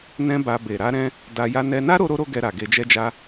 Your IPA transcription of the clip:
nɛ̃˧ ba˧ be˨ɾa˧ɾɛ̃˧ | da˧ ja˧nɛ˧ na˦ ɾo˦ɾo˦ɾo˦ɡɛ˧ ɾa˨ɡe˧d͡ʒɛ˦d͡ʒa˦

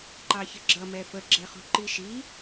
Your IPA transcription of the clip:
ǃɑçəɡ͡ǁʌ mɛfə ɡ͡ǁɛχṳǃiʃi

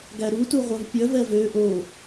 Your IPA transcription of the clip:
ɡæɾutu ʁʷœvpʲœvɛ vø ʔo

